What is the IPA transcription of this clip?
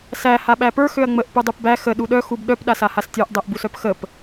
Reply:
sæ haɓæpə˞ xøɐ̯ŋ͡məʔ pudˤupbæ xə ɗuɗœ xubɗœp ɗasahastʲə˞ʔ dˤæʔbusœpxəp

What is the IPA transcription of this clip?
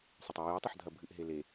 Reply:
sˤɐtˤujɨɪ̯ tˤɐħdʱɐbʱɨʔ ɦele

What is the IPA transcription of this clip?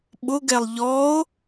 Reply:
ɓʊɡɛlˠ ʎɔo̯

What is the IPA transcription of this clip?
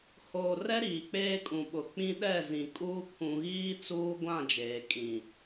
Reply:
hoː˨rɛ˦ ɾiː˨k͡peː˦kʼũ˨ɓʊ˨ k͡pĩ˦ɗɛ˦˨zĩ˨kʼuː˦ kʰũ˨ɣiː˦ t͡suː˦ɡʷã˦˨ d͡ʒeː˨kʼĩ˨

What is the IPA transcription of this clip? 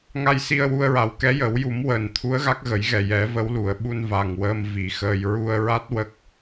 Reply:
ŋa˧j si˧ə̯wu˧ə̯ɹa˨˩˦w kɛ˧˥jə˨˩˦w ju˨˩˦mwəː˨˩˨n t̪ʰu˧˥ə̯ɣa˦˥k̚ɣə˨˩˦jɣɛ˨˩ jɛ˨˩˦və˧˥wlu˨˩˨ə̯ ɓu˧n va˨˩ŋwəː˧m vi˨˩˦xəː˧j ɹu˧ə̯ɹa˦˥t̚ wə˦˥k̚

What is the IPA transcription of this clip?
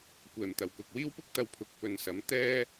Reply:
kʷɛː˨˩mt̪ɐ˨˩wkʊ˨k̚wiː˥w pʊ˥k̚t̪ɐ˧wpʰʊ˨˥k̚ pɵ˨nsɐ˨˥m t̪ɛː˧

